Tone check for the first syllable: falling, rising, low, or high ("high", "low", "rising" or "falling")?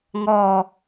falling